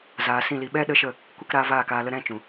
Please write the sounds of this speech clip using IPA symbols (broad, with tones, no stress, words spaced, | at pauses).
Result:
zaː˨ sĩ˦˨li˧ ɓɛ˦ ɗə˦ʃə˦˨ | kʷɨ˦˨kɾaː˧ vaː˦˨kaː˧lə˧ ɾɛ̃˦˨t͡ʃũ˨